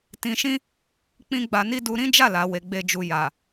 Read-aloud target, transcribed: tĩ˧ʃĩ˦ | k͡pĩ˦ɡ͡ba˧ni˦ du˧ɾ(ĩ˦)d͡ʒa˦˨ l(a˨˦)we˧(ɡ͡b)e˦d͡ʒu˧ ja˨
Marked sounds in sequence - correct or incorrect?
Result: correct, correct, correct

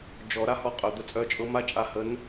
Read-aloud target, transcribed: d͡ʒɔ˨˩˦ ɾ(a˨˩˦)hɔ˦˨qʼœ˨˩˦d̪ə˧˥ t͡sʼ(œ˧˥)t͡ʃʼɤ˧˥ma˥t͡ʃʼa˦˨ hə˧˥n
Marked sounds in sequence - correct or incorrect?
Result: incorrect, incorrect

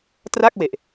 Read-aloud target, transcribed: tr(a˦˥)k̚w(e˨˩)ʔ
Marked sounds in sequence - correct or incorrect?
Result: incorrect, correct

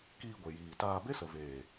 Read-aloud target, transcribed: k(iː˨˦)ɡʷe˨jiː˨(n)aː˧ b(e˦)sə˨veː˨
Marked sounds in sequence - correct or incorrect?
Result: incorrect, incorrect, correct

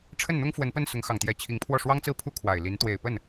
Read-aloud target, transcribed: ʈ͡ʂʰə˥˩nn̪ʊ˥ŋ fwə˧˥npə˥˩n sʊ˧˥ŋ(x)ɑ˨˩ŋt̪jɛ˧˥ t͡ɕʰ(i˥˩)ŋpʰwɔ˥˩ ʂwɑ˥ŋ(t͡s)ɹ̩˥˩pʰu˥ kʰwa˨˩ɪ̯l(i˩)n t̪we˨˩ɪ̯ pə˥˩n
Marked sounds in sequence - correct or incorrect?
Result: correct, incorrect, correct, incorrect

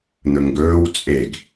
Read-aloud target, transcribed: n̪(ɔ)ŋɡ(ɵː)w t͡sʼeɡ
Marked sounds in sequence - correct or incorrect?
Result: incorrect, correct

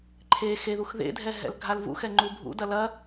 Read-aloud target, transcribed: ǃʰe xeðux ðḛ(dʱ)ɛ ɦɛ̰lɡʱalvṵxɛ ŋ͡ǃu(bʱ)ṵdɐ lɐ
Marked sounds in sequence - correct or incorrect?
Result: correct, correct

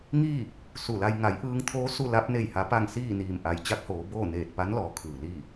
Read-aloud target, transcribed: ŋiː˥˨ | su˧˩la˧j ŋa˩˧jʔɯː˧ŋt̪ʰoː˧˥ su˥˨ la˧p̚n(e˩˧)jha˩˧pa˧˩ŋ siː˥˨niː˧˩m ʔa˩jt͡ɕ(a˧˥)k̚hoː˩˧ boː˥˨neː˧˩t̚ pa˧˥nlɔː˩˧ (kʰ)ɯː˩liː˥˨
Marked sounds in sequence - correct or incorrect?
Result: incorrect, correct, correct

